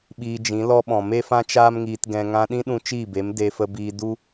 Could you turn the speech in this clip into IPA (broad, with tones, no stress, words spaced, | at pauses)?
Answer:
ɓiː˧d͡ʒĩ˨˦lɔ˦ɓɔ̃˨ me˦fã˦t͡ʃaː˦m ŋiː˧tɡɛ̃˧ ŋã˧ɗĩ˦ɗũ˧ t͡ʃiː˦˨be˨˦m de˧fə˧biː˧ du˦